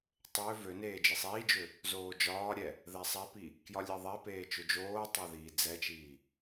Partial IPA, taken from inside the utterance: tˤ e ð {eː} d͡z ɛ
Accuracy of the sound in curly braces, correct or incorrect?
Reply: incorrect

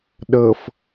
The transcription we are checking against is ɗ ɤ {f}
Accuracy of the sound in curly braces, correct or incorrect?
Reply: correct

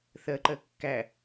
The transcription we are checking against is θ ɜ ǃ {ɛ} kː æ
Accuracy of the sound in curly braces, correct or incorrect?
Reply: incorrect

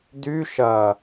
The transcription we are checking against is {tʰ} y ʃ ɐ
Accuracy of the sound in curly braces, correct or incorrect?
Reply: incorrect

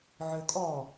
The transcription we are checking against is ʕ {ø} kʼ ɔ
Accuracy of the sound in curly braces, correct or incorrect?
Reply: correct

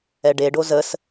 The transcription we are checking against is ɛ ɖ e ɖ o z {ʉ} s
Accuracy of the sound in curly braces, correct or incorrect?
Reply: incorrect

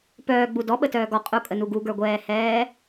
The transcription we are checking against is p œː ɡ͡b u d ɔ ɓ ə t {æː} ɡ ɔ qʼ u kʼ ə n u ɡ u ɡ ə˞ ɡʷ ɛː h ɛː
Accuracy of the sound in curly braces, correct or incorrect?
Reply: incorrect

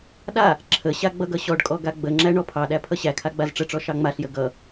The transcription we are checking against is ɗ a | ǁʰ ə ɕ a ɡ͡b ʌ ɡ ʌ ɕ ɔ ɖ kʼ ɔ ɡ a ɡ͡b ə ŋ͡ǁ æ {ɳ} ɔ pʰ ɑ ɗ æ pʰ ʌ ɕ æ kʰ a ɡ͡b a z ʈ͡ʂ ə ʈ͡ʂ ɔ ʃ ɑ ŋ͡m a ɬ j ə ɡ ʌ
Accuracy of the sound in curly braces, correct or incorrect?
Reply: correct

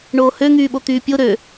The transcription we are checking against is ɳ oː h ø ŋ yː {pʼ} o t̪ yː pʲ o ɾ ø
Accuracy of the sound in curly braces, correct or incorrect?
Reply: incorrect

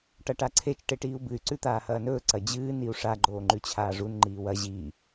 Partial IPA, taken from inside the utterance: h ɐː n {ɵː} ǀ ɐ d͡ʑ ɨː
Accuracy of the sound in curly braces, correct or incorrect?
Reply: correct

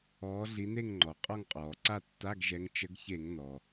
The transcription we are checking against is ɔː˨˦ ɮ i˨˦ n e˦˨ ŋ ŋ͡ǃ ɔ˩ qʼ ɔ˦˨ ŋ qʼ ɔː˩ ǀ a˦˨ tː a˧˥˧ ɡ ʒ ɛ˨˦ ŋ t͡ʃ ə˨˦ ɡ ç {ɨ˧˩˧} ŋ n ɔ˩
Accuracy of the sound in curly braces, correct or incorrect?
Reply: incorrect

